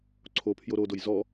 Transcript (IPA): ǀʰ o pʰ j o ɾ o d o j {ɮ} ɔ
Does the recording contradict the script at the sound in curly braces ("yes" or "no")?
yes